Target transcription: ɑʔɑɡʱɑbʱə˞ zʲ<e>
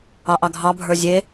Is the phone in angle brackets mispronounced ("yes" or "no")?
no